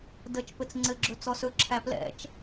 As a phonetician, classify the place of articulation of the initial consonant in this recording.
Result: alveolar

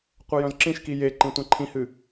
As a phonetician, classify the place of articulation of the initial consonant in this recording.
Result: uvular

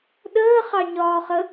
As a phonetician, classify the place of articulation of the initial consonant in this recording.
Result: alveolar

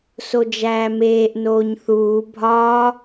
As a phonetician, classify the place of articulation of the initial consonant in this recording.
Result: alveolar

